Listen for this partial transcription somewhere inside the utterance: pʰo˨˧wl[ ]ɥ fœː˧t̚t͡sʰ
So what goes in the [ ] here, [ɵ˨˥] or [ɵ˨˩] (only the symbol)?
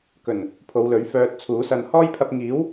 ɵ˨˥